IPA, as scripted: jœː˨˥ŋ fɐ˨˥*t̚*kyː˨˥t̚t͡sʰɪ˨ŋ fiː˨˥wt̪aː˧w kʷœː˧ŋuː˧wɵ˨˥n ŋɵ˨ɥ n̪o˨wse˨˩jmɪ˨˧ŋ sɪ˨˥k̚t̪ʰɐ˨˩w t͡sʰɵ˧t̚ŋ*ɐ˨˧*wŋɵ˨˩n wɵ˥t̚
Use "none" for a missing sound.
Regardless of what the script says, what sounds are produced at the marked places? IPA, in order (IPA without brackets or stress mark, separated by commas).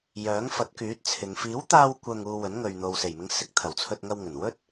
t̚, ɐ˧